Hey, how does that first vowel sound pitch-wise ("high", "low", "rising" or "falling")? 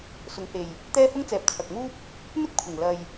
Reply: rising